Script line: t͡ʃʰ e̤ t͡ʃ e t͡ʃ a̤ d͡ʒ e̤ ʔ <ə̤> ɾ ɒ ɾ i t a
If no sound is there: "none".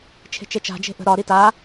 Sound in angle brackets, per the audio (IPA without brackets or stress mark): ə̤